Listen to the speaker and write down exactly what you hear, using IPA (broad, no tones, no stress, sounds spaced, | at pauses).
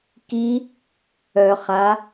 k i | œ χ a